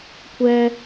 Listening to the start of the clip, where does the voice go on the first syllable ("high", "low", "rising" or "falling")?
high